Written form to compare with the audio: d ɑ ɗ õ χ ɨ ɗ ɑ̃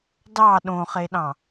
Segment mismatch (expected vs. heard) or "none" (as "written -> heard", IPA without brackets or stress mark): ɨ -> e